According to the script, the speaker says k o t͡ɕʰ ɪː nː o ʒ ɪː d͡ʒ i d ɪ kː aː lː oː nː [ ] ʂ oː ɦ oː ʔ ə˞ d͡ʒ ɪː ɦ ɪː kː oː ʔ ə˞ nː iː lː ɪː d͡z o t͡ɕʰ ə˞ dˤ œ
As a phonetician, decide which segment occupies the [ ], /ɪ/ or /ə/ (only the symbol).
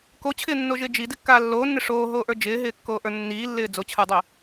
ɪ